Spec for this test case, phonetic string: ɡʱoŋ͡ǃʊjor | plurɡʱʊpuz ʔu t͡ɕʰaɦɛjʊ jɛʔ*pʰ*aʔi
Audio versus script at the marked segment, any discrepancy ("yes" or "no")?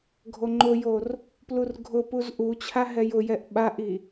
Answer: yes